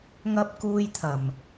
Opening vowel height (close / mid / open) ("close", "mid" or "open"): open